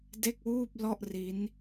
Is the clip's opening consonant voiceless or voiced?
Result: voiced